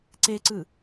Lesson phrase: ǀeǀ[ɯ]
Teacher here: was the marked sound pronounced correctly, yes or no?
yes